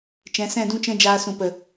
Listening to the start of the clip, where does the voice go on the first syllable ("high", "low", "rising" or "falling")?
rising